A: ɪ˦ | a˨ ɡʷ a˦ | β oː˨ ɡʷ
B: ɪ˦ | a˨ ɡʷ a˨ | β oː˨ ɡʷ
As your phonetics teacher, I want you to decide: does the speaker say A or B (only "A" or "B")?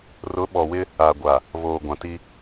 B